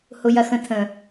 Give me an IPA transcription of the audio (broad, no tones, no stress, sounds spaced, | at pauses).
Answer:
h ʊ j ɐ x ə̃ tʰ ə̃